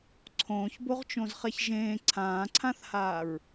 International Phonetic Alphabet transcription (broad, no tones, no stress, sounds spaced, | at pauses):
ǀʰ õː ç b o ʁ t͡ʃ õ z χ ɛ ç ʒ ẽː ǀʰ ãː ǀʰ ã θ h aː ɹ